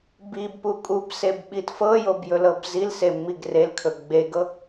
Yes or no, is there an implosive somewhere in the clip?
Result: yes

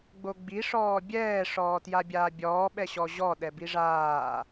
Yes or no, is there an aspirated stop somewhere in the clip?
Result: no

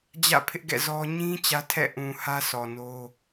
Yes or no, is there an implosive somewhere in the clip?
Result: no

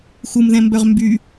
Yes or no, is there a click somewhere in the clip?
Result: no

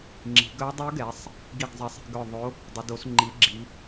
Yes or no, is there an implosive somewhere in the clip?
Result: no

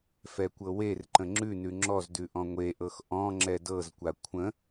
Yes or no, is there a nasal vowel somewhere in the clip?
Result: yes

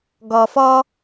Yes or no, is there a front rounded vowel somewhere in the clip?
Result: no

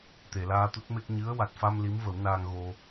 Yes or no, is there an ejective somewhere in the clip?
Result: no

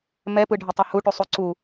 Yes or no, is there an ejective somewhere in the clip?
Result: no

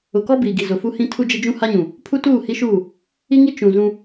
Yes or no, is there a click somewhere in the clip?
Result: no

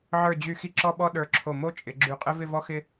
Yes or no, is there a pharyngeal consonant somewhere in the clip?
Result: yes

